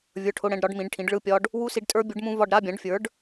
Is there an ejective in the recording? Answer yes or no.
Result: yes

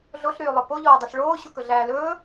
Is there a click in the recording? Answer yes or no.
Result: no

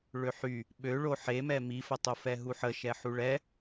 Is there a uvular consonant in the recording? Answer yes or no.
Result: no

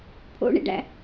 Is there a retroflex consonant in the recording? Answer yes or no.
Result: yes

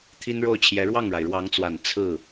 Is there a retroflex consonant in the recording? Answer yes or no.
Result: yes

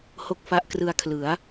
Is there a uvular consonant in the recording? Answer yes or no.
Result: no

